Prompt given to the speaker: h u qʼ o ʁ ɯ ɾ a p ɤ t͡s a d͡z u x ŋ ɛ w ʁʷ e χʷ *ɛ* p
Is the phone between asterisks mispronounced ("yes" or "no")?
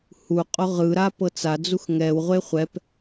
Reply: no